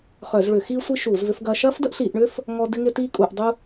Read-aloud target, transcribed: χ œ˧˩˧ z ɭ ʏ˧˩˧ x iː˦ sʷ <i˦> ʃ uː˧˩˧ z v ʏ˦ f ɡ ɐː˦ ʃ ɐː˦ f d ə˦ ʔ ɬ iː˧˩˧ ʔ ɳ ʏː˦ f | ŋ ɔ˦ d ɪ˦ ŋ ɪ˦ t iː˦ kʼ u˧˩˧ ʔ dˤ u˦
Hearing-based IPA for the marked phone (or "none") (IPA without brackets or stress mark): i˦